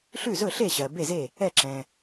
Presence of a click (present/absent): present